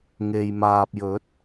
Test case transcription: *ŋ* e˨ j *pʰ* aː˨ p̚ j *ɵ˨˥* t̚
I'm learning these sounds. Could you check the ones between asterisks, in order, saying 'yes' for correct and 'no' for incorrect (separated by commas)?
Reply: yes, no, yes